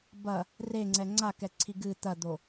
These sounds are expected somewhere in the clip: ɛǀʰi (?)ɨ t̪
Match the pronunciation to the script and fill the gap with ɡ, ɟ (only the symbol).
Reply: ɡ